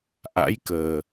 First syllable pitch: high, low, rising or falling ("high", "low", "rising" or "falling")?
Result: rising